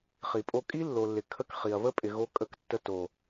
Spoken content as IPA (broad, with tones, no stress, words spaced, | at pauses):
χi˨pʼo˧ kʼi˦lːo˨lːɪ˨ kʰə˦˨kχi˨ɐ̯βə˦ pʼɪ˨ɣo˧kʼə˧k tːə˦ to˨